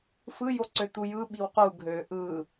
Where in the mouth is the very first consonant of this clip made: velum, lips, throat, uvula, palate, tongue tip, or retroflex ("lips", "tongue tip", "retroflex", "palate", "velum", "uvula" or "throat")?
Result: lips